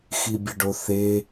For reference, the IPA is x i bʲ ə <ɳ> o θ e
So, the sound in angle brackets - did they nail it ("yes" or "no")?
no